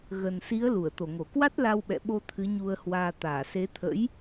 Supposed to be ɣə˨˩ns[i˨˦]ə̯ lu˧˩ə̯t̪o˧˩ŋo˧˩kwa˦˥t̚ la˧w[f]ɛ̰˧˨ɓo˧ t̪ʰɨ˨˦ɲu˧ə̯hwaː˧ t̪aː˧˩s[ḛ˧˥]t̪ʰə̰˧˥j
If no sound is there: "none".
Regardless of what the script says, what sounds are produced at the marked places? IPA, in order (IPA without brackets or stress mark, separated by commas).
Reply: i˨˦, ɓ, e˨˦